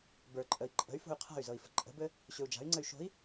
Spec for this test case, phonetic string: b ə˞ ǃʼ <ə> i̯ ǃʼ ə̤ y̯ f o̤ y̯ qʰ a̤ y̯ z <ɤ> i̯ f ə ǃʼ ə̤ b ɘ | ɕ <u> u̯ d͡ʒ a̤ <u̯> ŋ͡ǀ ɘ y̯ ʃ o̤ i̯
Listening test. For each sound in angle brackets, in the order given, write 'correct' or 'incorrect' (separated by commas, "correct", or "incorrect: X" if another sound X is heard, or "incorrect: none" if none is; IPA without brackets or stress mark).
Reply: correct, correct, incorrect: ʏ, incorrect: y̯